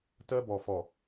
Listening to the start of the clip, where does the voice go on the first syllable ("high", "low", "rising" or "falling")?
high